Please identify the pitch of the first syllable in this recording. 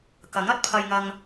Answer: rising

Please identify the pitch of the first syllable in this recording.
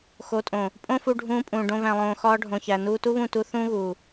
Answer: rising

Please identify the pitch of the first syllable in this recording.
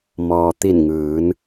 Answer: low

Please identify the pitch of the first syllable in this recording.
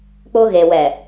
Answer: high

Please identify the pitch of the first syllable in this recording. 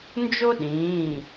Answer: high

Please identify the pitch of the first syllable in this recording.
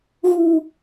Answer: low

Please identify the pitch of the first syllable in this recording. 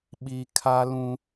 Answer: low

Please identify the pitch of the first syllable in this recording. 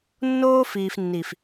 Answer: high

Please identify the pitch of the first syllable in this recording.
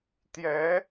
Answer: rising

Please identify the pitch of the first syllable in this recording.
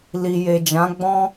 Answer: low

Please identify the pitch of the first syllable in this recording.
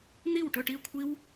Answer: falling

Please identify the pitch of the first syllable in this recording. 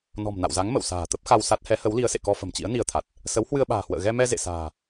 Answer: low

